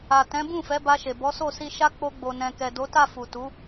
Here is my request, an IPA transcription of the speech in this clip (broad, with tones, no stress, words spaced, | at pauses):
a˨tɛ̃˨˦bũ˦˨ fɛ˨˦ba˧ʃe˨ bɔ˨˦so˦˨si˧ʃa˦ k͡po˧ɡ͡bo˨nɛ̃˨ kɛ˨do˨˦ta˦˨ fu˨tu˨˦